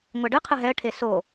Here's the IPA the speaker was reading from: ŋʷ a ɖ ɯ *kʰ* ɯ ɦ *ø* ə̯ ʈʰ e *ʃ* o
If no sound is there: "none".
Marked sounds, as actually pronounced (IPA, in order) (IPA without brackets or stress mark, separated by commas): qʰ, ɛ, s